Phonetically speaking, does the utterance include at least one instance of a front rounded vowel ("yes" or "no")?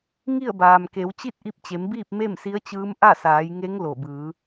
no